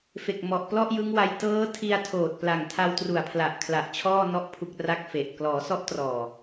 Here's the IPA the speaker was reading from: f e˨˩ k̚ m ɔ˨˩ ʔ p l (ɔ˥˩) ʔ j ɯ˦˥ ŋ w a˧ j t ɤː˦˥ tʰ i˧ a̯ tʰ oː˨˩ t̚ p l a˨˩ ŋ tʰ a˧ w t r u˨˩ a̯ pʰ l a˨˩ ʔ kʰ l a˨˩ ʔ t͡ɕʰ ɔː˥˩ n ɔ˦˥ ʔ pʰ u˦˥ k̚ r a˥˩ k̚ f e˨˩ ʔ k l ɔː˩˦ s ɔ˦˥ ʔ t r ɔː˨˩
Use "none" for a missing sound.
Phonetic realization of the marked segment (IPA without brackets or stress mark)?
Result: ɔ˥˩